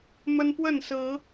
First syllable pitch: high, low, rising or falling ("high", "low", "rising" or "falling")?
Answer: high